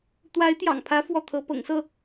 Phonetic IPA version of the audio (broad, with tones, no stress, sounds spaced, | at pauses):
t̪ w a˧˥ ɪ̯ t̪ j ɑ̰˨˩ ŋ pʰ ä˧˥ f w ɔ˥˩ t̪ʰ ɤ˧˥ p ɤ̰˨˩ ŋ s ɤ˥˩